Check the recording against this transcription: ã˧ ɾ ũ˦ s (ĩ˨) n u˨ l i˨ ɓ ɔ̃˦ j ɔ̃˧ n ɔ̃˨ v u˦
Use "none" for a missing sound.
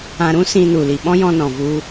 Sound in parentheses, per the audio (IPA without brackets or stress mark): ĩ˧